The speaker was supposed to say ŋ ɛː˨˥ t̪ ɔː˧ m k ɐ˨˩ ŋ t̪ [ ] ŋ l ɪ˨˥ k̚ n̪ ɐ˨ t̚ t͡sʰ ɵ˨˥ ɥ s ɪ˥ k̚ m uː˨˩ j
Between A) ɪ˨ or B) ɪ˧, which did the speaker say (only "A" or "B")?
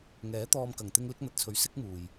B